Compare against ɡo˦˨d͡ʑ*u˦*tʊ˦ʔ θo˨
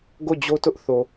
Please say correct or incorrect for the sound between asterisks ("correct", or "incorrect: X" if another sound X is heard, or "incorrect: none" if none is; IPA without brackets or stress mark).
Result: incorrect: o˦